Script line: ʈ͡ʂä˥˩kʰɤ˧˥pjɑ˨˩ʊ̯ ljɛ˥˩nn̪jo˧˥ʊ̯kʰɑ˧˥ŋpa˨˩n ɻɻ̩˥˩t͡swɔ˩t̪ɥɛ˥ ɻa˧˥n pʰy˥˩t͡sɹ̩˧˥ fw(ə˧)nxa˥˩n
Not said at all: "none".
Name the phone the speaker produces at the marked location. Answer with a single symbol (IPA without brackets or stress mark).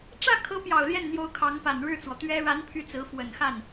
ə˨˩